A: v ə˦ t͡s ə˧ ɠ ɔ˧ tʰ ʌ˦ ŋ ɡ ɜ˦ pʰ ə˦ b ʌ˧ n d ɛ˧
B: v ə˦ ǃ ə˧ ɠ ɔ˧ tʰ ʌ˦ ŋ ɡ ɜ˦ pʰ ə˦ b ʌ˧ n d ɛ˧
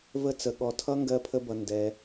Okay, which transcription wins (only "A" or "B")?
A